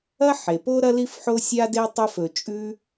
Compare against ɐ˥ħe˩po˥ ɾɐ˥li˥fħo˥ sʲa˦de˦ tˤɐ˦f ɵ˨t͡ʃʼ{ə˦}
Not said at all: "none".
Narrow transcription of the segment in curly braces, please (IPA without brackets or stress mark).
ʉ˦